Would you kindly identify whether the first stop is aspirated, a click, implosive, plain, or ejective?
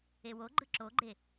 click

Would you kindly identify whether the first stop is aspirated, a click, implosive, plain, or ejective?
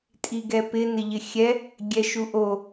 ejective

